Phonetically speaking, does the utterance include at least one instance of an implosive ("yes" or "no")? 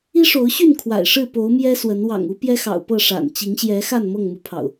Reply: no